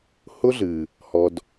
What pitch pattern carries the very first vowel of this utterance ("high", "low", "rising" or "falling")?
high